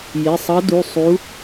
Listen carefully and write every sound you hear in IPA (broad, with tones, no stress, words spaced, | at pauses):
jɪ˩˧˩sˤʌ˧˥du˩˧˩ sˤu˧˥